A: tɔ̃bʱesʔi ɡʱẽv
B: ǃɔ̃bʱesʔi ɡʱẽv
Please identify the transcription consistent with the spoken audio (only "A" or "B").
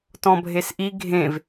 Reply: A